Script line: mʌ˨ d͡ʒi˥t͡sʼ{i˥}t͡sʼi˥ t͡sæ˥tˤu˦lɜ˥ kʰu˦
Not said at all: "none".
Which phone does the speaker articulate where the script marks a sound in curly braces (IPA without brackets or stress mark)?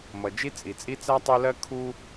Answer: i˨